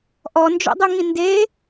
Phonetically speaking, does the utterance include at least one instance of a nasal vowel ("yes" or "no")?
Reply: yes